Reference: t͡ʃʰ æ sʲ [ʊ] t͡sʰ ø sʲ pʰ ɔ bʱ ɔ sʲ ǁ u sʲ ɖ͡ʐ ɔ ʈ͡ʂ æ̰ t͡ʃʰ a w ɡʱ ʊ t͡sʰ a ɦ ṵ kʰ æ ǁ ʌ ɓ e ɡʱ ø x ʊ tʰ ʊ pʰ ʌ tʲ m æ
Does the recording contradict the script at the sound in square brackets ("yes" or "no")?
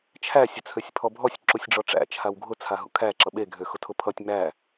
no